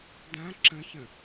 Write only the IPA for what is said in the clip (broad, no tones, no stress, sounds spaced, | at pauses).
d ã ǁ ə̃ ç ə̃